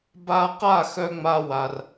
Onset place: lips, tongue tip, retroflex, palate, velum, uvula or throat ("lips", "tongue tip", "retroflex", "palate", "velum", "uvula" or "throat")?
lips